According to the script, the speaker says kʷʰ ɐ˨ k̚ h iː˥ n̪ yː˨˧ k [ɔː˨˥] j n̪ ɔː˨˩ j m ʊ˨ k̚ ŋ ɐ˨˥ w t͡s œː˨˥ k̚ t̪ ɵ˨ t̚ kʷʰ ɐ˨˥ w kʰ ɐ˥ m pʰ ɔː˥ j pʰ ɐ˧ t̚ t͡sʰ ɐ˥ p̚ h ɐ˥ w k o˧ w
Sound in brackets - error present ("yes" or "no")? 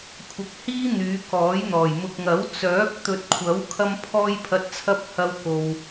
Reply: no